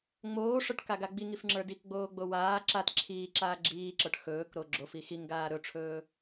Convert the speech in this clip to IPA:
ŋ͡moːʂə˞ʈkaɡa ɡ͡biŋifŋ͡ǁə˞ dikɡ͡boːɡ͡bo waː ǁat ǁʰiːǁaː ɡ͡ǁiːǁə˞ʈ xɵːkɾo ɡ͡ǁofi xiŋɡaː ɾɵʈ͡ʂʰɵː

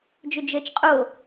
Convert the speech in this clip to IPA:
d͡ʒɵd͡ʒəːt͡ʃqʼo

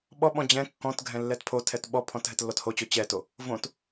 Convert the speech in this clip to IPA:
ɓɔɓɔ̃ d͡ʑɛ̃ kːɔ̃t ɡʱɛ̃lːɛtpʰotʰɛt ɓɔpʰɔ̃t ɦɛtlːɔthot͡ɕo t͡ɕɛto | võt

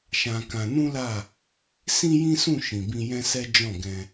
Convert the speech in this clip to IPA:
ʃã˧kã˧ nũ˦la˦˨ | sĩ˦jĩ˦sũ˦˨ ʃĩ˨bĩ˧jɛ̃˦sɛ˦ d͡ʒɔ̃˦˨ɡɛ̃˧

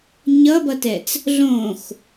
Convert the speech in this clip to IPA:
ɲʌbʌtɛt͡s | ɮõx

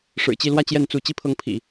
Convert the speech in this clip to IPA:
ʂɻ̩˨˩t͡ɕi˥˧lwä˥˧ t͡ɕjɛ˥˧nt͡su˥˩ t͡ɕi˥pʰɤ˧˥ŋpʰḭ˨˩˦

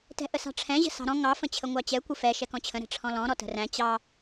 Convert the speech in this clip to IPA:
tɛ̤ʔəsɑ̤ʈ͡ʂʰɛ̃ ʑə̤sɑ̤ɾɔ̃ ŋɑ fə̃t͡ɕʰəŋʷɑt͡ɕɛ kʷəfɛ ʃɛkɔ̃t͡ɕʰə̃ ɾɛ̤ʈ͡ʂʰɔ̃lɔ̃ ɾɔtə̤ræ̃ t͡ɕɑ

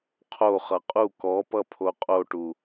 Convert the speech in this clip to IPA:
qʰo χʌqʼu kɔpʌpʰo qʼoʈu

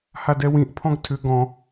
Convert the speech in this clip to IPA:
hadɛwĩʔpʰɔ̃ɡ tʰʏ ɡɔ̃

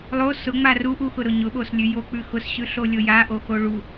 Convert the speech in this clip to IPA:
lˠo sʊŋ͡ma ru ʔuxʊɾʊ ɲʊɓoslʲʉ jok͡pʉ xʊsɕʉ ɬolʲoja ʔoxoɭu

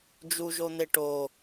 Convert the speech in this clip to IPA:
d͡ʒuʒon̪e ʈo

